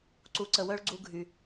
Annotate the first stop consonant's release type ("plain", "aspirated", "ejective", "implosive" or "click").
click